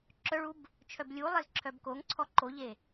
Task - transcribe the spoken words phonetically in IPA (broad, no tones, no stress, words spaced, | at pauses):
ǁœɭub | t͡ʃʰœblʲulˠez ǁʰœbkoŋǀʰɔ ǃoʎe